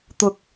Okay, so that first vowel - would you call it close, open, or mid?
close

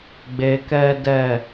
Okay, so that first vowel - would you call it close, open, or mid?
mid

